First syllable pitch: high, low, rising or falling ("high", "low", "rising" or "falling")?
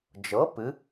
rising